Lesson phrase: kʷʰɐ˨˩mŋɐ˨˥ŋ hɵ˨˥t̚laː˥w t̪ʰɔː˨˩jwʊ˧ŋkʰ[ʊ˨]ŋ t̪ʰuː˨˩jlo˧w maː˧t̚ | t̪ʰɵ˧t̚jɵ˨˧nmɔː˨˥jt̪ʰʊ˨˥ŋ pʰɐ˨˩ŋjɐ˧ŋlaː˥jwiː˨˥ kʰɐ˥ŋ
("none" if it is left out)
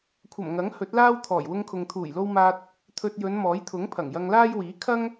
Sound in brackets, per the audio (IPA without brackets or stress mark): ʊ˨